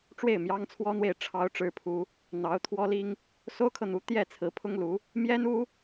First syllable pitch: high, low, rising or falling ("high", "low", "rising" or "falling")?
falling